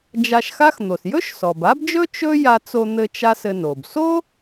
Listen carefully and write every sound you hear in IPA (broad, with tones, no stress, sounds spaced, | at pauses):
d͡ʒ a˧ ʃ x a˥ x n̪ o˩ s j ɵ˥ ʃ s ɔ˩ b a˥ b d͡ʒ ɵ˥ t͡ʃ ɵ˥ j a˧ t͡s o˧ n̪ ɘ˧ t͡ʃ a˥ s ɘ˧ n o˩ b s o˥